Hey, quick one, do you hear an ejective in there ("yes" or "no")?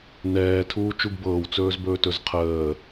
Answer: no